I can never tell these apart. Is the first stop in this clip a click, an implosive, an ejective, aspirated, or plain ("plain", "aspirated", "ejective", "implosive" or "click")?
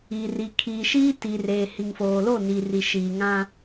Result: aspirated